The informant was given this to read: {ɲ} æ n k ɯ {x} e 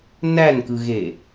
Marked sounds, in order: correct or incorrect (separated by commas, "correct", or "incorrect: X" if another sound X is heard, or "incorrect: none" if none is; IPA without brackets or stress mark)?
incorrect: n, incorrect: ɣ